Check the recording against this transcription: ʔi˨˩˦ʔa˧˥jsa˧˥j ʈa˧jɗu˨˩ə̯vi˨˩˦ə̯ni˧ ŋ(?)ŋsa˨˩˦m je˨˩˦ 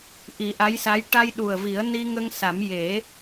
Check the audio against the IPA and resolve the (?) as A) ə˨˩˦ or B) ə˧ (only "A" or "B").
B